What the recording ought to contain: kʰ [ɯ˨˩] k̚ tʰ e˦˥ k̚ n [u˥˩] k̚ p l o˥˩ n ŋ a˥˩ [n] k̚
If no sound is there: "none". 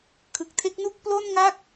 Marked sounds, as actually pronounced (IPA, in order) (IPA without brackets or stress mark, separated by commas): ɯ˨˩, u˥˩, none